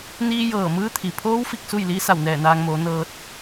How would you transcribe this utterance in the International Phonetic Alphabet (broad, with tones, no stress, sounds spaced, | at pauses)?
n iː˧ j ɤː˧˩ m ɯː˧˥ t̪ʰ i˩ pʰ oː˧˥ w f i˧ k̚ s u˥˨ j l iː˧˥ s a˧˩ w n ɛː˧˩ n aː˧ ŋ m oː˩˧ n ɤː˧ t̚